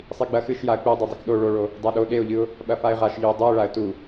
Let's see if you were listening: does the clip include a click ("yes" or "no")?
no